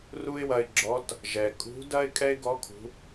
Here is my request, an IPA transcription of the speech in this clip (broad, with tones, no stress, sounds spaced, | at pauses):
r u˥ ɪ̯ w ɐ˧ ɪ̯ ɡ͡ǁ ɔ˧˥ t | ʒ ɛ˩ kʼ ṳ˧˥ d ɐ˥ ɪ̯ kʼ ɛ˥ ɪ̯ ɡ ɔ˧˥ kʰ ṳ˩˧